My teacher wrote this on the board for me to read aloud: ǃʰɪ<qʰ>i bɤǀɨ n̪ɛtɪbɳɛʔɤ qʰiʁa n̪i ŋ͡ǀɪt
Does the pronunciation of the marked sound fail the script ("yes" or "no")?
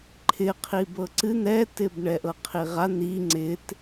no